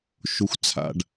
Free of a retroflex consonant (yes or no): no